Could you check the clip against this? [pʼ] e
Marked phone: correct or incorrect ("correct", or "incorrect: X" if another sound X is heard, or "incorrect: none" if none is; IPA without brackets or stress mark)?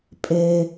correct